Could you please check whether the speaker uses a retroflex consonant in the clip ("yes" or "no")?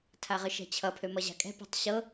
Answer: no